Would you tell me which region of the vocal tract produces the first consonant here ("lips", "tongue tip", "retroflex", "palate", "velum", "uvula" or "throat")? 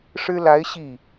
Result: retroflex